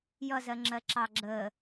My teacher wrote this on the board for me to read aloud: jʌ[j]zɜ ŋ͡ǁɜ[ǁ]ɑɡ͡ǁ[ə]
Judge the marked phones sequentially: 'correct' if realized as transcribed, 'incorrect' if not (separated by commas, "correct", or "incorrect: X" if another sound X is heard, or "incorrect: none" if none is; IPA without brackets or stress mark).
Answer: incorrect: none, correct, correct